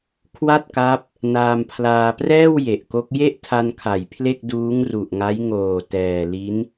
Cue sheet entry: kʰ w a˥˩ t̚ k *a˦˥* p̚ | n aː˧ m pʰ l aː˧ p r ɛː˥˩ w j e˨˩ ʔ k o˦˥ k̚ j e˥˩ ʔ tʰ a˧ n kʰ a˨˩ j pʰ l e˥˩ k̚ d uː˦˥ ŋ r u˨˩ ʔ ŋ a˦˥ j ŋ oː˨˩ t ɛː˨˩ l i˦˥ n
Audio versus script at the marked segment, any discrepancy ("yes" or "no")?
no